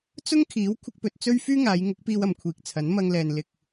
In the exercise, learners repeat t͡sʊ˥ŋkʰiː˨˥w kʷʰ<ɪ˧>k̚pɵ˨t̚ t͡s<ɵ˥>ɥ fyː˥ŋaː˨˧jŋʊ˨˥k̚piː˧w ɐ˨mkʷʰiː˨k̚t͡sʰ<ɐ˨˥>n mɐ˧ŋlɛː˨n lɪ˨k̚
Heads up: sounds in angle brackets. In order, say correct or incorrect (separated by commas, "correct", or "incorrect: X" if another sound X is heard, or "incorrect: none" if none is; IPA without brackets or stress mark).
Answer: correct, correct, correct